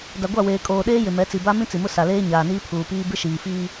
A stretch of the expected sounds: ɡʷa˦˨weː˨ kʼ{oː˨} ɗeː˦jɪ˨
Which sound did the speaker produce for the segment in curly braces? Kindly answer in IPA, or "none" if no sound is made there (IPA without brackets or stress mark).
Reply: oː˨